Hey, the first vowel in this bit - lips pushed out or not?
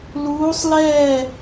yes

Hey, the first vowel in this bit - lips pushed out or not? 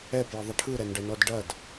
no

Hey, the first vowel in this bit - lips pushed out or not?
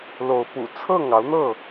yes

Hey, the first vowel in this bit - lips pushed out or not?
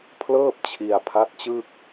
no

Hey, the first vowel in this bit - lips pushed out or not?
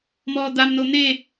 yes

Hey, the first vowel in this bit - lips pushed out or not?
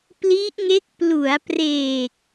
no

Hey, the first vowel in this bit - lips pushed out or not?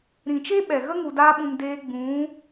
no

